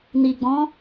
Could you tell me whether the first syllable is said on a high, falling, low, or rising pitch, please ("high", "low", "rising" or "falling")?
low